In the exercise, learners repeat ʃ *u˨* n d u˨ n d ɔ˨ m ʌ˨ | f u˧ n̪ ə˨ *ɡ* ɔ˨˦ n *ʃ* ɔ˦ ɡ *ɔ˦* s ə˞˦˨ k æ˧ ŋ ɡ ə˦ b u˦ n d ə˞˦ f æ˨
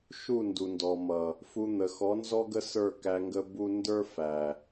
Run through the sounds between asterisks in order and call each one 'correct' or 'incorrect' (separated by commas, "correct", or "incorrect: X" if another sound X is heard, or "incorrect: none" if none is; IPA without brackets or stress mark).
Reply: incorrect: u˦˨, incorrect: x, incorrect: z, incorrect: ə˦